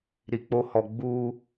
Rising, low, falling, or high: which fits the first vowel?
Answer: low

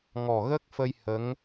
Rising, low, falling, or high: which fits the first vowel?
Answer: low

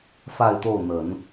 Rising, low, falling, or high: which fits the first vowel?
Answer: falling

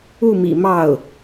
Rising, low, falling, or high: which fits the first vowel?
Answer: falling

